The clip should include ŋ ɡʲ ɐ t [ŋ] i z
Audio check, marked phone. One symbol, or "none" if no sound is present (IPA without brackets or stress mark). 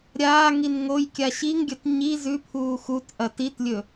ɲ